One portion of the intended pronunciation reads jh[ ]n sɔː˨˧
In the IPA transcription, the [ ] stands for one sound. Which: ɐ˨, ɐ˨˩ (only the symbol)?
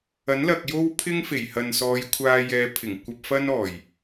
ɐ˨